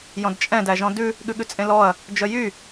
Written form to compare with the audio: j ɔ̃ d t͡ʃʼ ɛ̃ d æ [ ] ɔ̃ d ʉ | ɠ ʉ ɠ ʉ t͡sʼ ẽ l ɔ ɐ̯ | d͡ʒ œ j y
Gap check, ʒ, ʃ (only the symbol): ʒ